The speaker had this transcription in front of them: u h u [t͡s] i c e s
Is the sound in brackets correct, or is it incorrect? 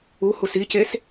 incorrect